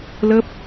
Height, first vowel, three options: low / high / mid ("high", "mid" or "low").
mid